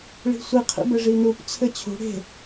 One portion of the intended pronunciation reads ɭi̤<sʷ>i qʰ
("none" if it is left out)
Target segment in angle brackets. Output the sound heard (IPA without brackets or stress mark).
sʷ